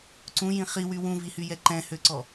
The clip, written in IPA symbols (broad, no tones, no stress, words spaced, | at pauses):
ǀũjĩ χiwy wũvihyjɛ ǃɛ̃høǀɔ